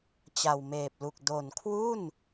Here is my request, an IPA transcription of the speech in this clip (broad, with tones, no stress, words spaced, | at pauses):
t͡ɕa˨˩wmeː˨˩p̚lu˨˩k̚ do˨˩nkʰwu˥˩n